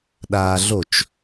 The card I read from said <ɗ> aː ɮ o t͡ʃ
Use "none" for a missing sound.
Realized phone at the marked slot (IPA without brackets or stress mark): ɗ